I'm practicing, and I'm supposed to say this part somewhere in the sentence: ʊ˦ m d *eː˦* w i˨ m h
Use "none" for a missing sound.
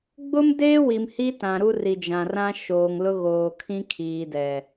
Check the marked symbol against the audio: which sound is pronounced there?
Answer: eː˦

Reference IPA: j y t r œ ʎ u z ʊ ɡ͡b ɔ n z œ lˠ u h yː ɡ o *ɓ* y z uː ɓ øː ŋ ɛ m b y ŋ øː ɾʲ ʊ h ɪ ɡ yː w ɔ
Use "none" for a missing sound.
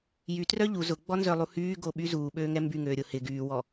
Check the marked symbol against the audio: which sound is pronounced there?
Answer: ɓ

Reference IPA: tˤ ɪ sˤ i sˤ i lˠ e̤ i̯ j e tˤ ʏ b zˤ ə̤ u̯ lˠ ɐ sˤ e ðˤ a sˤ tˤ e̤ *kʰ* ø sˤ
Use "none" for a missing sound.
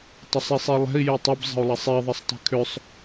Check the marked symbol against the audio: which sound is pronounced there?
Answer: kʰ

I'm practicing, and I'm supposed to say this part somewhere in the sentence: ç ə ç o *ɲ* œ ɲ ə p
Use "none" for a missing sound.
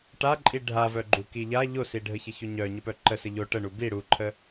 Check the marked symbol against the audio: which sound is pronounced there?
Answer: ɲ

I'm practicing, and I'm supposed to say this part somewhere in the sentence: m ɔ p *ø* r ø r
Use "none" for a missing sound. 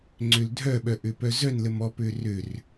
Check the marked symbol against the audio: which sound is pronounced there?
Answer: ø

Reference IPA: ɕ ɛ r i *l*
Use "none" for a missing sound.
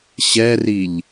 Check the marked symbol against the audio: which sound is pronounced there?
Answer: ʎ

